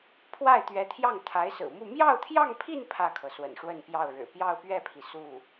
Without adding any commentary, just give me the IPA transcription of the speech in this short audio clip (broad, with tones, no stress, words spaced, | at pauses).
pʰwa˥˩ɪ̯t̪ɥɛ˧˥t̪ʰjɑ˥˩ŋ t̪ʰa˧˥ɪ̯sɹ̩˨˩mu˥˧ mjɑ˥˧ʊ̯t̪ʰjɑ˥˧ŋpʰi˥˧n pʰä˥˩kʰɤ˩ swə̰˨˩nʂwə˥˧npjɑ˥˩ʊ̯ɻɻ̩˨˩ pjɑ˥˧ʊ̯pɥɛ˥˩pʰi˩ su˥˩